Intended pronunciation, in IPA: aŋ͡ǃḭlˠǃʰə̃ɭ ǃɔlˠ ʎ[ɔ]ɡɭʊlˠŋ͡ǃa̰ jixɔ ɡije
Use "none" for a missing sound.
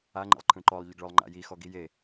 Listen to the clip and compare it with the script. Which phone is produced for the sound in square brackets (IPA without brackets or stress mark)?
ə